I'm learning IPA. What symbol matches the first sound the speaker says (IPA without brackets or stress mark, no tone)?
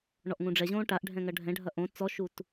ɳ